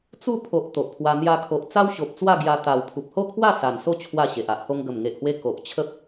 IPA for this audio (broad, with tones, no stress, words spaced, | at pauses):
t͡su˥˧ pʰo˨ʔ t̪o˨ʔpʰwa˧ n̪ja˧kʰo˨ʔ t͡sa˦wɕo˨p̚ t͡swa˥˧ɡja˧ t̪a˨˩w pʰu˨p̚ho˥˧kʰwa˥˧ sa˨˩nso˥˧ t͡ɕʰwa˥˧ɕe˨ʔa˦ʔho˦ŋ ɡə˨˩mŋe˨ʔhwe˧ ko˨ʔ t͡ɕʰə˦p̚